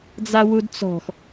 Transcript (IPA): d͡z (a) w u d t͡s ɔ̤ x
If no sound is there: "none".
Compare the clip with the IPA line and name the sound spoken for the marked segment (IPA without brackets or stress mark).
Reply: a